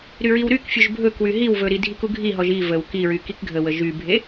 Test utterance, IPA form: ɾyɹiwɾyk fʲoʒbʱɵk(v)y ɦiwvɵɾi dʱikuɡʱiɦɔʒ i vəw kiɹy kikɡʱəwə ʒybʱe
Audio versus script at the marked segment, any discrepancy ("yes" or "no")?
yes